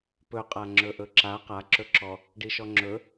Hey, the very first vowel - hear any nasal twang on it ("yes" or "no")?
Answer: no